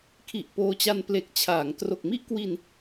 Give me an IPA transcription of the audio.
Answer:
kʰ i˨˩ ʔ p oː˧ t͡ɕ a˧ n p l e˨˩ k̚ t͡ɕʰ aː˩˦ ŋ t r o˨˩ k̚ m i˥˩ ʔ k w i˧ n

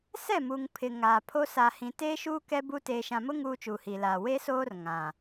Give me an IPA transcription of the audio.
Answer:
s ɛ˦˨ m u˨ ŋ pʰ ɪ˨ ŋ aː˨ pʰ o˦ s aː˨ h ĩ˨ t eː˦ ʃ uː˦ k ɛ˦ b u˦ t eː˨ ʃ ã˨ m ʊ˦ ŋ uː˦ t͡ʃ uː˨ h iː˨ l aː˨ w e˦ s oː˦ r ŋ ã˨

